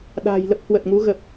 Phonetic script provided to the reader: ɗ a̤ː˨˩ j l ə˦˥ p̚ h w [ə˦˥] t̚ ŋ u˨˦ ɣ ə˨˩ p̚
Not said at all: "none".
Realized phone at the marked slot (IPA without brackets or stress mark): ə˨˩